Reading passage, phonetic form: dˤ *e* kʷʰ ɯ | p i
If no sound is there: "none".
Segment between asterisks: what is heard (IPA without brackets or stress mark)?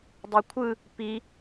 ɛ